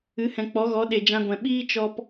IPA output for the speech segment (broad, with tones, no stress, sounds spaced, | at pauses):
ɨ˨˦ h ɛ̃˨ k͡p ɔ˨˦ ɣ ɔ˨˦ ɗ e˨ d͡ʒ ã˧ ɡʷ ɛ̃˨ ɓ iː˦ t͡ʃ ɔ˧ p